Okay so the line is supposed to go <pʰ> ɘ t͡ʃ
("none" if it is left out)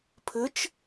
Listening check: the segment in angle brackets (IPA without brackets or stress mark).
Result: pʰ